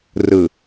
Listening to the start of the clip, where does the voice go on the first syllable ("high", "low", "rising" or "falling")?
low